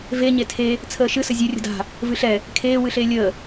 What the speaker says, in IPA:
ve ɲetʰe | t͡sʰəːʃɨ səzʲɨ rʲə̤da̤ | vɨɬɛ | kʰeː wɨɬeːlʲəː

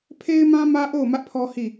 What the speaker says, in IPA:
pʰe˦ɪ̯mã˦ mä˦ʔo˦˨ʊ̯ mä˦ʔpʰɔ˦ hi˦˨

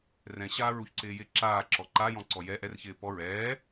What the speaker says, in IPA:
rɛ̃ ɕaːɹuçǀɪːjɪ ǁaːǁɔ ǃajɔ̃ ǀɔjɛ ʔɛrçɪː pɔ ɹɛː

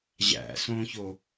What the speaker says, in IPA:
ʑæ̰sõço

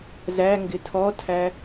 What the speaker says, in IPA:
zæ ŋɡɪtʰɔtʰæ

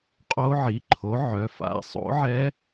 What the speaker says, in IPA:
qʼo˦˥ ʕi˩˧˩ǃʰo˨˥ʕœ˩˧˩fa̰˩˧˩ sˤo̰˨˥ʕɛ˦˥

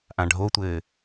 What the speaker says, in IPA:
ʔãɖʱotʷɘː

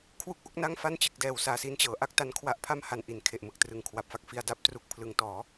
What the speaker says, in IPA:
kʰwu˥˩k̚ʔo˦˥k̚ na˥˩ŋfa˥˩nt͡ɕɯ˨˩k̚dɛː˨˩w saː˨˩si˧nt͡ɕɤː˩˦ ʔa˦˥k̚ta˦˥nkʰwa˦˥ʔ pʰa˥˩mha˨˩n ʔi˩˦nkʰe˨˩ʔmɯ˨˩k̚trɯ˨˩ŋ kʰwa˨˩p̚fa˥˩k̚fi˧a̯ da˥˩p̚tru˦˥k̚ pʰlɯ˩˦ŋtɔː˩˦

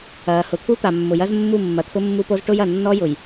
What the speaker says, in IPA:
ɐː˨hʊ˨t̪ʰu˦t̪a˨ mːʊ˨jɐ˦zmːu˦˨ mːɐ˨t̪ʰʊ˦mːu˦po˦z ʈʊ˦jɐ˨ nːɔ˦jʊ˨j

